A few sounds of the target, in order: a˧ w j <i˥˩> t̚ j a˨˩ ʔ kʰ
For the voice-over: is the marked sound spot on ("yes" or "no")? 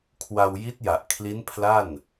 no